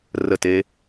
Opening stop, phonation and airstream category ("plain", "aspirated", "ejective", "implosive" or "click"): plain